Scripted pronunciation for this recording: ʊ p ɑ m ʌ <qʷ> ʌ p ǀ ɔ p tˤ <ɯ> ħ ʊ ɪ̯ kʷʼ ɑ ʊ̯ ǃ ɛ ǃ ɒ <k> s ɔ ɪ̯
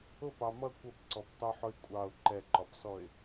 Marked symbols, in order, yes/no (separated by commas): no, no, no